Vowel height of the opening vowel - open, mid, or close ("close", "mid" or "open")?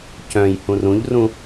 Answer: mid